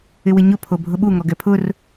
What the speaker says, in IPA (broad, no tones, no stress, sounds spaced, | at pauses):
ɪ w ɪ ɲ ʊ pʰ o bʱ ʊ ɓ u ŋ ɔ ɡ ɛ pʰ ʊ r